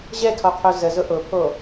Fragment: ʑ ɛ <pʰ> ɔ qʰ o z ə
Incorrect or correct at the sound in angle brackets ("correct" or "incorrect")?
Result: incorrect